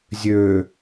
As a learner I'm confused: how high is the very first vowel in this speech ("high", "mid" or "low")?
mid